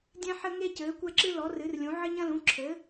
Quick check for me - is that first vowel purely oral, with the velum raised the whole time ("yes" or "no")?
no